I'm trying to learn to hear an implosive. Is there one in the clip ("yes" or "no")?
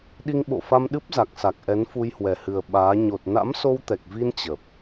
yes